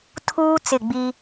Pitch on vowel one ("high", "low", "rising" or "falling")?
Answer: high